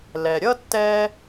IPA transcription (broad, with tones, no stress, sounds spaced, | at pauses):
l ɛ˩ ɾʲ ʌ˥ tː ɛ˥